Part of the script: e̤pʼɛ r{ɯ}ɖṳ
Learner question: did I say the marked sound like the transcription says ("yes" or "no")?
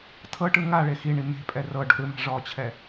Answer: no